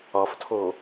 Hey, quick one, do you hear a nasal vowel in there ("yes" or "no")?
no